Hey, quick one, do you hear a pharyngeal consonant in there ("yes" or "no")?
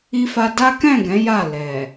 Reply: no